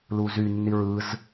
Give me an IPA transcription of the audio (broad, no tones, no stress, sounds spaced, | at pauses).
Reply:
l u z y nː i ɹ ɯ z